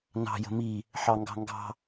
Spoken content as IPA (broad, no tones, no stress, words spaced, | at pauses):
nɑ̤ jə̤mi | ħɑŋɡɑ̤ŋɡɑ̤